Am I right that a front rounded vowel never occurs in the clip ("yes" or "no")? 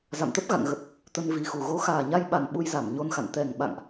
yes